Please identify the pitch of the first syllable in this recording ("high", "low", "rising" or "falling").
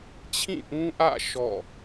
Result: falling